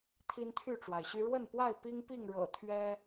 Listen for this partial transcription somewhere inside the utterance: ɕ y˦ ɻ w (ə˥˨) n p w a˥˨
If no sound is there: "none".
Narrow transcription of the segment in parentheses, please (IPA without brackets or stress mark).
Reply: ə˥˨